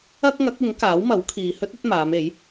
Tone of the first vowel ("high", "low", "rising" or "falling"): high